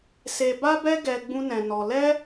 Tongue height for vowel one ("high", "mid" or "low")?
mid